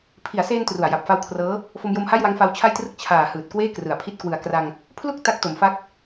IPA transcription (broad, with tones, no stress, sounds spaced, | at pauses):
pʰ i˩˦ a̯ s eː˧ n t r u˨˩ a̯ j a˨˩ p̚ f a˦˥ w kʰ r ɤː˦˥ | f o˧ m j o˧ m h a˥˩ j w a˦˥ ŋ f a˦˥ w t͡ɕʰ a˥˩ j t r ɯ˥˩ k̚ t͡ɕʰ aː˨˩ h ɯː˨˩ t̚ k w eː˥˩ k r ɯ˩˦ a̯ pʰ i˦˥ t̚ k w ɯ˨˩ a̯ k r a˧ ŋ | pʰ l u˥˩ k̚ t a˦˥ k̚ t o˩˦ m f a˦˥ k̚